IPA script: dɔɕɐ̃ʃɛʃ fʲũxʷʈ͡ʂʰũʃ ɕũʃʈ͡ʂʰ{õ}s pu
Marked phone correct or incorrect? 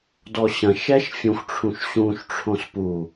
correct